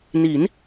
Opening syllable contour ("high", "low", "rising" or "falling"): rising